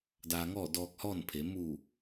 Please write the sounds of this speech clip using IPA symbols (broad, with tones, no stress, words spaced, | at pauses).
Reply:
daː˧ŋɔː˥˨ dɔː˧k̚hɔː˥˨npʰe˩˧ muː˧˩